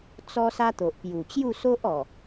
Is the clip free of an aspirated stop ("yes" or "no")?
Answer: yes